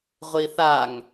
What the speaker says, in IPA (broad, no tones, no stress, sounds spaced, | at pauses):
ʁʷ i θ a ŋ